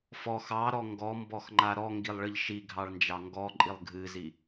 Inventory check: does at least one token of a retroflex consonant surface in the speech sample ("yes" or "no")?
yes